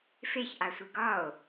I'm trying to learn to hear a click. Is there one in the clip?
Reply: no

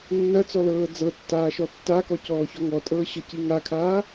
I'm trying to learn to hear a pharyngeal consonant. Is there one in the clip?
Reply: no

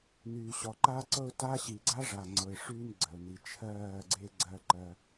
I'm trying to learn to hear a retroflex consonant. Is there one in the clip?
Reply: yes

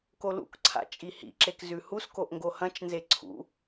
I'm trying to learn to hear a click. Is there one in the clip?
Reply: yes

